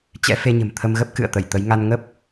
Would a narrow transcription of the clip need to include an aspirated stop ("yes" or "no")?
yes